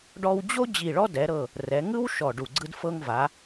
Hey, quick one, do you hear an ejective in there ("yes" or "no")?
no